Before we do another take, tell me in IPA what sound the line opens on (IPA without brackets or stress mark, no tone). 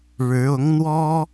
ɻ